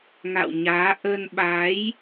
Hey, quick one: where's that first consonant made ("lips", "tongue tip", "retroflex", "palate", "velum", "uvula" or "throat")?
velum